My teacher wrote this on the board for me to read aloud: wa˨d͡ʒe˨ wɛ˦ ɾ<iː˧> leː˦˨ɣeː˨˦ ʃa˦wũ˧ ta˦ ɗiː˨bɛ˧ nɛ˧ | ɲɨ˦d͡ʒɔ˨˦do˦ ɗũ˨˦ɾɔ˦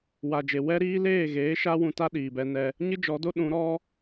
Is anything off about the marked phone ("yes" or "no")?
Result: yes